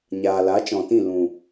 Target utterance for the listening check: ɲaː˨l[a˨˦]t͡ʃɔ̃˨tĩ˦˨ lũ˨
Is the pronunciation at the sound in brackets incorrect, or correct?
correct